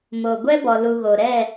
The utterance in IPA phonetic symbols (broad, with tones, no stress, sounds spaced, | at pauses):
m o˨ ɡʷ ɛ˦ b ɔ˨ l u˨ ɣ o˨ ɾ ɛ˦˨